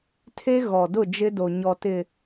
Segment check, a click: absent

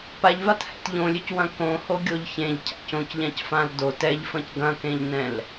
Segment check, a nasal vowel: present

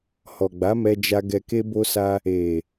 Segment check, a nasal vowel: absent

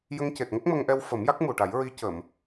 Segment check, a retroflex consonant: present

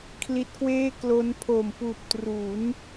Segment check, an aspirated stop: present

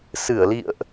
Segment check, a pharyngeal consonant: absent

